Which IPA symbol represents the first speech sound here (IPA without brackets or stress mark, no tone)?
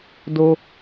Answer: d